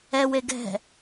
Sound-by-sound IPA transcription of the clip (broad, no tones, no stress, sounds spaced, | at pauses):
ɛ w e ɡ ɛ̤